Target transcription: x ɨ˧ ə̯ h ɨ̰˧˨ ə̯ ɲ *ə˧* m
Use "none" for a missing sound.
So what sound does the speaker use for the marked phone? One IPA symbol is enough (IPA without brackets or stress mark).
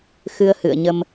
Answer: ə˧